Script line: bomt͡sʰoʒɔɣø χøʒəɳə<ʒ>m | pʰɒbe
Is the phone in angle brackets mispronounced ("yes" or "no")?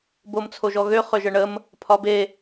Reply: yes